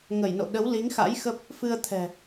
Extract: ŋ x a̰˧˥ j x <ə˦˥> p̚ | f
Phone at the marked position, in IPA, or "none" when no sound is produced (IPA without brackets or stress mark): ə˦˥